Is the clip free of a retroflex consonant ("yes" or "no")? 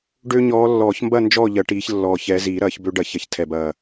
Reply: no